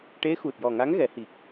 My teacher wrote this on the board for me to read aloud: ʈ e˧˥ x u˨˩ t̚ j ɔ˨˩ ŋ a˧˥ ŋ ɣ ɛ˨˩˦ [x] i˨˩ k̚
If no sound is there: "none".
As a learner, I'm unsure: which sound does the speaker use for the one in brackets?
h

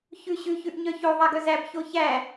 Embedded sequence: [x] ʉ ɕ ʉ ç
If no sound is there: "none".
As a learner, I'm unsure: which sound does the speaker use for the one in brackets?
ç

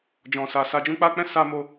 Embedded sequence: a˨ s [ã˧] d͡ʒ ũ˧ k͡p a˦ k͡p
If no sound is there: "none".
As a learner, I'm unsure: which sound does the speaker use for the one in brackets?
a˧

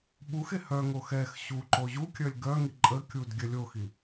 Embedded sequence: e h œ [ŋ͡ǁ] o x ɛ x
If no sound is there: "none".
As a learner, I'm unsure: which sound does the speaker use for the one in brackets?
ŋ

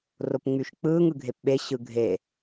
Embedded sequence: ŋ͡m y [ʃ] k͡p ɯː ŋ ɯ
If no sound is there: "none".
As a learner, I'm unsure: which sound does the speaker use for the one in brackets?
ʃ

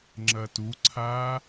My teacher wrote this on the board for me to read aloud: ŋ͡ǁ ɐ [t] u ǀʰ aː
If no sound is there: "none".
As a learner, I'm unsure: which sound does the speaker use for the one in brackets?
t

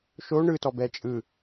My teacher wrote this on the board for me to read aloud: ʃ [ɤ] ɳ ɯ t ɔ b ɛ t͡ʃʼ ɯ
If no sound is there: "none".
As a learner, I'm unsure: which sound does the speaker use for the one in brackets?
o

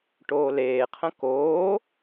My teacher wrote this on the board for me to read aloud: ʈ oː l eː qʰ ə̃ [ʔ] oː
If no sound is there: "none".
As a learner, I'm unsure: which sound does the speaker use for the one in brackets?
k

